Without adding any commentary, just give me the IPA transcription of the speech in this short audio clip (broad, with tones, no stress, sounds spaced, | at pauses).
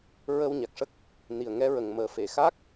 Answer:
ɹ ə˧ w ɲ a˨˩ k̚ ʂ ə˦˥ k̚ | n i˨˩ ə̯ ŋ ɛ˧˥ ɹ ə˨˩ ŋ m əː˨˩ f e˨˩˨ x a˦˥ k̚